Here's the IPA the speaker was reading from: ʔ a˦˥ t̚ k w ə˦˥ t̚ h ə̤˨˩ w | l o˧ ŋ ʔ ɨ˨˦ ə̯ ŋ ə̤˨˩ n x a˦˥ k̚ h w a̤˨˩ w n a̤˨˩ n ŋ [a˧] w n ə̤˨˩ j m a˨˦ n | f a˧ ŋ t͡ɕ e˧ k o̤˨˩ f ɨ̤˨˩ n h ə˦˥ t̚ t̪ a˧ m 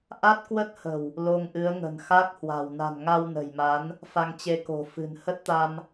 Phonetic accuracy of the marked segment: correct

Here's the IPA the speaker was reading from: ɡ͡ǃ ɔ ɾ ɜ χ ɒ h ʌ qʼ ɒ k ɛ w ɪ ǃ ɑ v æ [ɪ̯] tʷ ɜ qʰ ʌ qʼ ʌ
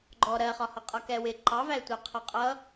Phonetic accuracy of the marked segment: correct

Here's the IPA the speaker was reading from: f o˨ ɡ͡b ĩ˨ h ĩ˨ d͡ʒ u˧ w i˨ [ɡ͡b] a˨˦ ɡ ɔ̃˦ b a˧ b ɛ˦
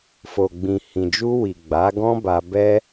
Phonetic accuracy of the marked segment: correct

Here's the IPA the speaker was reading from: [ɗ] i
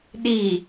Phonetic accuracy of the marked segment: correct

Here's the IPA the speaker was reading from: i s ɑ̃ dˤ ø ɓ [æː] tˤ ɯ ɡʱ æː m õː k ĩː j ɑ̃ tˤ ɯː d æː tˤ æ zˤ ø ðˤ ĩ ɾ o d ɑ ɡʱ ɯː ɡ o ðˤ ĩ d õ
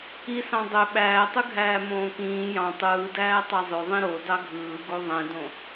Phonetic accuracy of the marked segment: correct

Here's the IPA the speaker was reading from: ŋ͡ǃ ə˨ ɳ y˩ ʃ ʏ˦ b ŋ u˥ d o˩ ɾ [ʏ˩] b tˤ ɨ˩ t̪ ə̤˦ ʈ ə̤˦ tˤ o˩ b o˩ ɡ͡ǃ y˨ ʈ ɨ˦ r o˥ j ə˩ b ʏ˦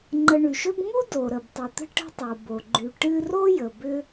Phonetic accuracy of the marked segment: incorrect: ə˩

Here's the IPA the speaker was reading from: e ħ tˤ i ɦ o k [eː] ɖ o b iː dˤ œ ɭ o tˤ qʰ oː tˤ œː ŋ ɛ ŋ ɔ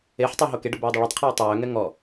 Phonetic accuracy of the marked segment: incorrect: e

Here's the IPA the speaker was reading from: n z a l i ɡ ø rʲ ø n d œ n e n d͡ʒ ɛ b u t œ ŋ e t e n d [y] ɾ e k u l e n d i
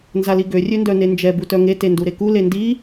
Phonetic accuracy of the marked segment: incorrect: u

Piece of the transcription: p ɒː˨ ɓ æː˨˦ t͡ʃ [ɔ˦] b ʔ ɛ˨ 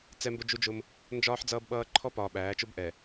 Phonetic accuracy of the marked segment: incorrect: ʊ˦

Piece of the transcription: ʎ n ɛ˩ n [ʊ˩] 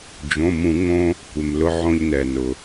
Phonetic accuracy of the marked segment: correct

